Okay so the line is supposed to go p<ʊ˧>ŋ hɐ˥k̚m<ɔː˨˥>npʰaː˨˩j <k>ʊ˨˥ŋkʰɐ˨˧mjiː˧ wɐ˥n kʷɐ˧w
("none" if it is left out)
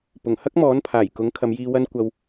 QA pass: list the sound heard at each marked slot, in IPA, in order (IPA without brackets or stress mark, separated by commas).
ʊ˨˩, ɔː˨˥, k